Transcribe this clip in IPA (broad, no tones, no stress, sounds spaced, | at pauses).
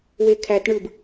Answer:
w e kʰ æ t ɳ ɯ b